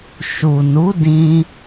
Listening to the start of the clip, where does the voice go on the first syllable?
low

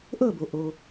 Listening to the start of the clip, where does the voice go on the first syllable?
falling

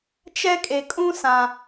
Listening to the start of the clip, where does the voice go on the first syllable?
high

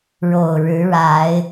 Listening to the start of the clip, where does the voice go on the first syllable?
low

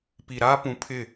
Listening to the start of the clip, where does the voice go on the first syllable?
low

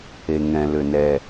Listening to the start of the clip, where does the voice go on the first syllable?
low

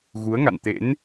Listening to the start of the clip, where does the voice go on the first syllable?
rising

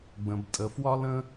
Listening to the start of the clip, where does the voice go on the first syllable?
low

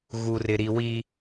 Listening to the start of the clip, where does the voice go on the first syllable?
low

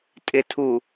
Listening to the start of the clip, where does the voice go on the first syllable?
low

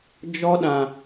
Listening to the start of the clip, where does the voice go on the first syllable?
high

